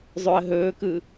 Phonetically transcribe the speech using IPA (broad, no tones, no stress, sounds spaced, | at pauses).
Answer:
zˤ ø ə̯ ɦ ɵː k ɯ